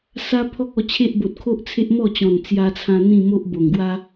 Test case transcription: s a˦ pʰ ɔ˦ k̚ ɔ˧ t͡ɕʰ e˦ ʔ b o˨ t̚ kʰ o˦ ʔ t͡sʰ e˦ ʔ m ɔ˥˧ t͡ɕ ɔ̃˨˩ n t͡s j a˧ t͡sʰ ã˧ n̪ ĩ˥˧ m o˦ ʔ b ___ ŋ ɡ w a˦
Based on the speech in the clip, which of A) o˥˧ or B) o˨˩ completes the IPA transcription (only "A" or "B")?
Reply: B